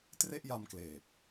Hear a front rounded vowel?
no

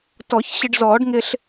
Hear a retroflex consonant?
yes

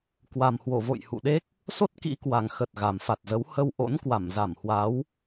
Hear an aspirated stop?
no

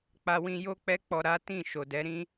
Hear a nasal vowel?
yes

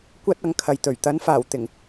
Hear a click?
no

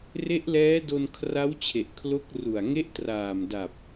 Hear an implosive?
no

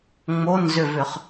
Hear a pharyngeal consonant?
no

